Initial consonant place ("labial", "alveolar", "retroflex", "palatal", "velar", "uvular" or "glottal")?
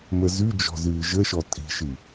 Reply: labial